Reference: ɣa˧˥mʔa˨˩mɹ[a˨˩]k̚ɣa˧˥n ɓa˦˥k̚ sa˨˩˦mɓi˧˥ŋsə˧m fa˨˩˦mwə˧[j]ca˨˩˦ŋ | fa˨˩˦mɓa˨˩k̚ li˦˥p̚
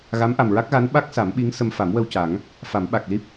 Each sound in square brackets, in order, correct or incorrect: incorrect: a˦˥, incorrect: w

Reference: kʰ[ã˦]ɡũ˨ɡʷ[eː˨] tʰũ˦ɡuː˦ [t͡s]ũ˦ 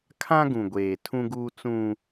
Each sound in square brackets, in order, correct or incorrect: correct, correct, correct

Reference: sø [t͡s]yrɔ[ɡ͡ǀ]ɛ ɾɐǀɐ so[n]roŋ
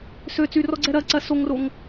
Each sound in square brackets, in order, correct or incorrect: correct, correct, incorrect: ŋ

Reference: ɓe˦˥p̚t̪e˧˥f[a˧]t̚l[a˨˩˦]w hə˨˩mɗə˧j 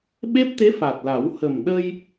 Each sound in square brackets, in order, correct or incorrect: incorrect: a˨˩, correct

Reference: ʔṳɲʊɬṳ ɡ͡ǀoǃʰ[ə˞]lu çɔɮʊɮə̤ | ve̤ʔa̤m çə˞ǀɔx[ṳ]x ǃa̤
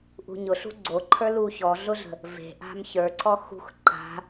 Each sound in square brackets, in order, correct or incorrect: correct, correct

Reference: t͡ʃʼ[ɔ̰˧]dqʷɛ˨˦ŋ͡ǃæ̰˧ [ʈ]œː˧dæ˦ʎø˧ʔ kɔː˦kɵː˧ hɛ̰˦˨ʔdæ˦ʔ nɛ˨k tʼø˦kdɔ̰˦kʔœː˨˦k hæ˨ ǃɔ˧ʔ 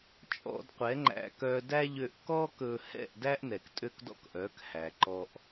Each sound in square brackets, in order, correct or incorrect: correct, incorrect: k

